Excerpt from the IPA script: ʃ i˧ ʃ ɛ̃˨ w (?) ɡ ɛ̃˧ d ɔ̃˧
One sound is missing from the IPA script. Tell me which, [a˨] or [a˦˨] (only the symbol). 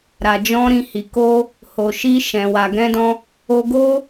a˨